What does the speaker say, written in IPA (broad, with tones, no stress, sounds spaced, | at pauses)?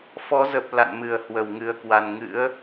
f ɔ˨˦ z ə˨˩ p̚ l a̰˧˨ n m ɨ˧˩ ə̯ h w ə˧˩ w ŋ ɨ˨˩ ə̯ k w a˨˩ n ŋ ɨ̰˧˥ ə̯